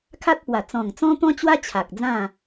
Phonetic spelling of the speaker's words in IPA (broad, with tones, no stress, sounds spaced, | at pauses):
kʰ a˦ t̚ p w a˨˩ t͡s ɔ̃˨˩ ŋ t͡s ɔ̃˦ t̪ ɔ̃˦ t͡ɕ w a˦ t͡ɕʰ a˨ k̚ d͡z ã˥˧